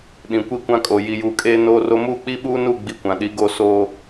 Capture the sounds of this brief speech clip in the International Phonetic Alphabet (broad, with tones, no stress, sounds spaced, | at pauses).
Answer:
ɗ ĩ˨ kʷ i˦ kʷ ã˦ kʼ o˨ j i˨ j uː˨ kʼ eː˦ n oː˦ r o˦ m uː˦ k͡p i˦ ɓ uː˦ n u˦˨ ɡ͡b i˦ kʷ ã˨ ɗ i˨˦ ɡ o˦˨ s oː˨